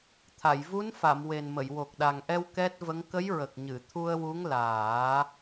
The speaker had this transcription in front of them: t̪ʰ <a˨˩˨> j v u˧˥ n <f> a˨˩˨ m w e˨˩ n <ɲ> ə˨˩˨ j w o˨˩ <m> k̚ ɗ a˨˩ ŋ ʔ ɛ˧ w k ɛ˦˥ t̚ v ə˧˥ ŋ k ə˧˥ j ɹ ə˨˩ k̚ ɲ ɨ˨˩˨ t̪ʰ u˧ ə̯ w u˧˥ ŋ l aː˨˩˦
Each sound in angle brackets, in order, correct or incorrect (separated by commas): correct, correct, incorrect, incorrect